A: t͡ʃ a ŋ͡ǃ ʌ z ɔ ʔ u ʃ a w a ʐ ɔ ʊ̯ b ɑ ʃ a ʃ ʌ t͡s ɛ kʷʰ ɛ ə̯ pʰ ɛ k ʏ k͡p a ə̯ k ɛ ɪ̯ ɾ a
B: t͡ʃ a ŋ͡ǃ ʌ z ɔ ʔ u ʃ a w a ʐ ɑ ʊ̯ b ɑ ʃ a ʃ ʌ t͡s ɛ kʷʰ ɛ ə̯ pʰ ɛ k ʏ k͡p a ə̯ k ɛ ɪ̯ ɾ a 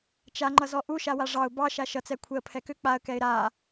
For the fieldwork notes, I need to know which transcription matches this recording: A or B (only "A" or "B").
B